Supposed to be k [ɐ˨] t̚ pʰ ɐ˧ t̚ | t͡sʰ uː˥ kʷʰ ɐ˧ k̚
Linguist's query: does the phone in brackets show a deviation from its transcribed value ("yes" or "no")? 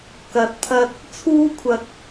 no